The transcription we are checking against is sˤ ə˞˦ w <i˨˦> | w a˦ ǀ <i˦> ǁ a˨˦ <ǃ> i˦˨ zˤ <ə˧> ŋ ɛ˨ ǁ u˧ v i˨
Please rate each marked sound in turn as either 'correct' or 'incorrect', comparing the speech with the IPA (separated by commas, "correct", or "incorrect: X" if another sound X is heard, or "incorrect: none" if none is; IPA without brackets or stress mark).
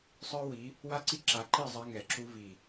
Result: correct, correct, correct, incorrect: a˧